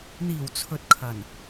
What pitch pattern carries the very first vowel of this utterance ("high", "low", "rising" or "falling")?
low